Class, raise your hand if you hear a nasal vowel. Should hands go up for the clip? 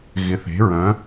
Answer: yes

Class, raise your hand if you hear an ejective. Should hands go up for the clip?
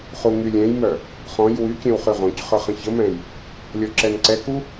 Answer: no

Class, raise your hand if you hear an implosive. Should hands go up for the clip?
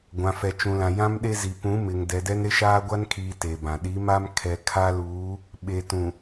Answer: yes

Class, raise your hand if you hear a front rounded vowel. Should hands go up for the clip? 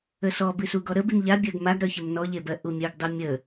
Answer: yes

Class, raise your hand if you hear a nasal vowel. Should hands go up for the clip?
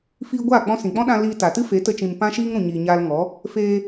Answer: yes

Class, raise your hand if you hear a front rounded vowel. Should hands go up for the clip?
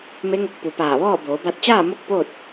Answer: no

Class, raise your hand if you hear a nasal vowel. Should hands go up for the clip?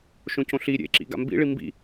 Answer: yes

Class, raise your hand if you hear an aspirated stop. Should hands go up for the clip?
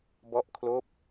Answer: yes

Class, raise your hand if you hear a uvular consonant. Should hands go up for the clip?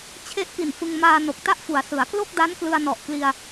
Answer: no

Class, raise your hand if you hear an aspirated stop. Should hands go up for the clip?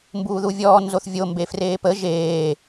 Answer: no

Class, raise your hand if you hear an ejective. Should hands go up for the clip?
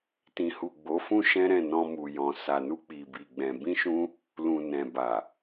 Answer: no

